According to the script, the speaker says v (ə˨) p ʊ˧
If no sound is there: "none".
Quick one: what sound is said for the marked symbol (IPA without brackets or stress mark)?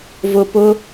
ʊ˨